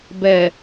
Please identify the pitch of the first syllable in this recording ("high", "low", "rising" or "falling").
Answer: low